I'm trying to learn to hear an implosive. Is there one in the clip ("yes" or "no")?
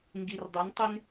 no